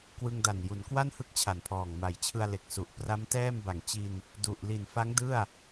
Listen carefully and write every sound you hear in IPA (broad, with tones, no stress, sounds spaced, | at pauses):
k w ɯ˧ ŋ d a˨˩ n j u˩˦ n k w a˥˩ n h ɯ˦˥ k̚ t͡ɕʰ a˨˩ n pʰ ɔː˨˩ ŋ m a˨˩ j t͡ɕʰ ɯ˧ a̯ l e˨˩ k̚ s u˨˩ ʔ p r a˦˥ m t ɛː˥˩ m b a˨˩ ŋ t͡ɕ i˧ n | d u˨˩ ʔ l i˨˩ n f a˦˥ ŋ d ɯ˥˩ a̯